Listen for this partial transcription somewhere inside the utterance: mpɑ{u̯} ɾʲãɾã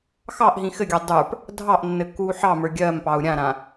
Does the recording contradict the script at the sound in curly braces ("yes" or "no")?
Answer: no